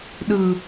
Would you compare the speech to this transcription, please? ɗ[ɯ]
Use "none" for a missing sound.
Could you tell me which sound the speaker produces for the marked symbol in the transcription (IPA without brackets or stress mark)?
ɯ